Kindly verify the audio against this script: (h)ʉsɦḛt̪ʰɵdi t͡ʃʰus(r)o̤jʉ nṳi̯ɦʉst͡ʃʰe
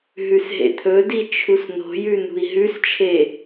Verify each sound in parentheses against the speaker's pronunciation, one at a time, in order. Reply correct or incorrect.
incorrect, incorrect

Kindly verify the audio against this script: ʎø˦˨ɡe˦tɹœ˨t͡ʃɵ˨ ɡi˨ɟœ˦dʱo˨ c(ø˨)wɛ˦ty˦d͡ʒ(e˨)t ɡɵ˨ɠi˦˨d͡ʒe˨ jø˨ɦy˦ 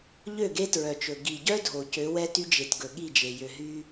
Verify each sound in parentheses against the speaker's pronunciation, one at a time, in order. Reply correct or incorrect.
incorrect, correct

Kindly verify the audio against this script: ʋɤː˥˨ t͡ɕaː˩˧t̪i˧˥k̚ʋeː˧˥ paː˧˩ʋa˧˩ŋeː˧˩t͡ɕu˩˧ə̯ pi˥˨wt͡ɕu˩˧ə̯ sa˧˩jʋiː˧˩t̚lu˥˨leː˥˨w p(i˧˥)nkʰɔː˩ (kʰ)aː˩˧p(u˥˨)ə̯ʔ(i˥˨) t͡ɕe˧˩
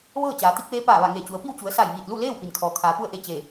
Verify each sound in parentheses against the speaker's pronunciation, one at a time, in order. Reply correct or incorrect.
incorrect, correct, correct, incorrect

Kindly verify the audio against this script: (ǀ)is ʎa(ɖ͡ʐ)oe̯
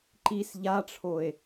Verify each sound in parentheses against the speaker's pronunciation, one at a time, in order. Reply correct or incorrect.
incorrect, incorrect

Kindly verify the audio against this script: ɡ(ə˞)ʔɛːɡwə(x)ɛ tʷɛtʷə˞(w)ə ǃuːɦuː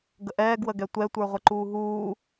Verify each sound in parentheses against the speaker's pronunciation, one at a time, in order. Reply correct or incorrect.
incorrect, incorrect, incorrect

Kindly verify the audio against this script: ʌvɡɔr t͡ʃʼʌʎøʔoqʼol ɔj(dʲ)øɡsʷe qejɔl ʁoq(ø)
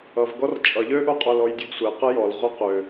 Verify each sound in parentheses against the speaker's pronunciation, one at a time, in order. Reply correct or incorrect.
correct, correct

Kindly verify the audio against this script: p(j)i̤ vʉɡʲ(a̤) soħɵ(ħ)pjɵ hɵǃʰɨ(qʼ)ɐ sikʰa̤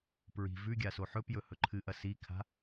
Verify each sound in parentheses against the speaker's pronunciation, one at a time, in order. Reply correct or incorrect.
incorrect, incorrect, incorrect, incorrect

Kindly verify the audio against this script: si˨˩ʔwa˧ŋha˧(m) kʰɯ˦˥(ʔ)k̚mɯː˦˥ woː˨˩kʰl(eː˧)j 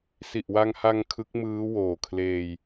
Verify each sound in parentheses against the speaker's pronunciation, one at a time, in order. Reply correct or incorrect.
incorrect, incorrect, correct

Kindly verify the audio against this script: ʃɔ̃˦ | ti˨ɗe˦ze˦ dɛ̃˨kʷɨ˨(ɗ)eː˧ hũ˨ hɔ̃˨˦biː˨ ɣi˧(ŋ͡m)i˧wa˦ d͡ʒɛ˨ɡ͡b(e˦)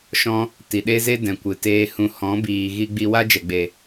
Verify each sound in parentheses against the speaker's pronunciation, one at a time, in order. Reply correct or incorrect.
incorrect, incorrect, incorrect

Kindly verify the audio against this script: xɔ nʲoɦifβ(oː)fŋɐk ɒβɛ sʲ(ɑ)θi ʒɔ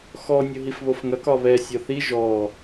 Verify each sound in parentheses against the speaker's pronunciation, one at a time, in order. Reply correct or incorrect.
incorrect, incorrect

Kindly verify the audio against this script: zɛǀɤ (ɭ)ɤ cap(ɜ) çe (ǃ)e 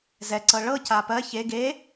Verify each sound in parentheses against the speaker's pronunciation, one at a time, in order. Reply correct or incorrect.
correct, correct, incorrect

